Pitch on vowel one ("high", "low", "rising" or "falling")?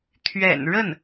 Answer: low